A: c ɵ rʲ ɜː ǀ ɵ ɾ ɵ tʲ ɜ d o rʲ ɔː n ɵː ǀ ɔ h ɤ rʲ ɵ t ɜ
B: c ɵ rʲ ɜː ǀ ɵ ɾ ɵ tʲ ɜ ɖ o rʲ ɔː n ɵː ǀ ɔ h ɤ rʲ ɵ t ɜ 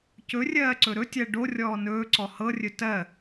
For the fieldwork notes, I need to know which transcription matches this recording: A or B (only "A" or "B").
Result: B